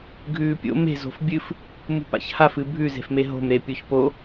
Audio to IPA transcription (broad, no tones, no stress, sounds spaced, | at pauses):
ɡʱ ʉː pʲ o̰ m e̤ z o̤ f bʲ ɨ f | m ṳ p a̰ ç h a f ɨ bʱ ʉ z e̤ f m e ɦ o̤ m ɾ e pʲ o ç p o